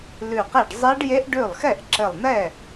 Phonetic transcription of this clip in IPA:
l ʉ˧˩ q e˥˩ ɖ zˤ e˦˥ ɖ j e˦˥ ʔ ɖ ʉ˥˩ lˠ x ɛ˥˩ ʔ ǁ ɘ˧˩ lˠ n ɛ˥˩

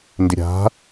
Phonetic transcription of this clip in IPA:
n d ɪ ɾʲ a̤

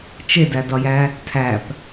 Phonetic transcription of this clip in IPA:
t͡ʃ e d æ d ɒ j æ | tʰ æ p

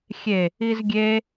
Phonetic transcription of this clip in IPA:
xʲ e | i z ɡʲ e

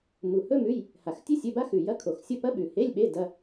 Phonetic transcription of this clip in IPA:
m u˨˩ h ɵ˥ m ʉ˧˥˧ j | h a˨˩ x tʲ ɨ˥ sʲ ɵ˧˥˧ b a˥ x ʉ˨˩ j ɐ˧˥˧ kʰ o˨˩ x sʲ o˥˨ p ɐ˥ ɓ ʉ˨˩ h e˧˥˧ lʲ ɓ e˧˥˧ d ɐ˧˥˧

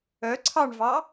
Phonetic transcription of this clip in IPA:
œ ǀʰ ɑ ɳ v ɑ

